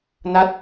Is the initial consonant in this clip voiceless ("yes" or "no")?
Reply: no